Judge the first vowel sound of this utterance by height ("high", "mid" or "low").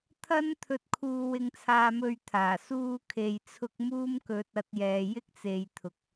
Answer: low